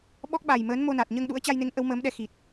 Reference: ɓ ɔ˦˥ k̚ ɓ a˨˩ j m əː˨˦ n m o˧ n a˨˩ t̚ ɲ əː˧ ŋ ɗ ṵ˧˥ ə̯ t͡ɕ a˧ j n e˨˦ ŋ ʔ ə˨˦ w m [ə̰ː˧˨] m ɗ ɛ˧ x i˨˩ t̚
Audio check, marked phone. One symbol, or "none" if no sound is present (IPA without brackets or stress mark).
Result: əː˨˦